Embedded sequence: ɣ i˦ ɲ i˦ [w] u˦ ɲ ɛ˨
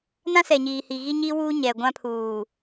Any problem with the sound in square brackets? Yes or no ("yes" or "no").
no